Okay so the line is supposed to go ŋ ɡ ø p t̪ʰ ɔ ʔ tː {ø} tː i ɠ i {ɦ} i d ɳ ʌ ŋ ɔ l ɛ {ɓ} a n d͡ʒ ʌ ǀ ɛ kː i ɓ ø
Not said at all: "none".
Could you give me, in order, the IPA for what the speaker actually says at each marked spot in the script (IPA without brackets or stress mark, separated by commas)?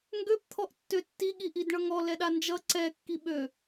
ø, ʔ, ɗ